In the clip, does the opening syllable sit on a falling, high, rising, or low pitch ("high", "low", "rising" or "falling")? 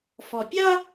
low